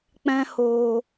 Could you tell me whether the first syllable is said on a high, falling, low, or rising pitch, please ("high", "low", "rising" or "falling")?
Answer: high